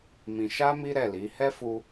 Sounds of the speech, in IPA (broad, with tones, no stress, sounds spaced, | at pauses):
m ĩ˧ ʃ a˦ m i˦ ɾ ɛ˦˨ l i˨˦ h ɛ˦ f u˧